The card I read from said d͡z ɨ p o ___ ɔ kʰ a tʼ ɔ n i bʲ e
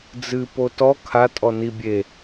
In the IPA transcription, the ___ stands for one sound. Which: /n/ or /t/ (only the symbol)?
t